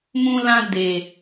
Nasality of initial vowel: nasal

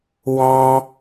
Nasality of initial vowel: nasal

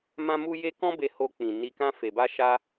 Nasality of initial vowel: nasal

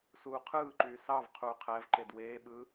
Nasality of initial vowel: oral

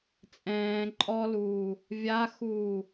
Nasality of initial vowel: nasal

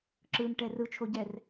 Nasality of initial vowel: oral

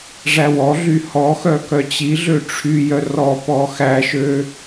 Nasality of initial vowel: oral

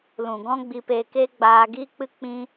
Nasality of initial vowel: nasal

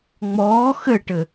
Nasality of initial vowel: oral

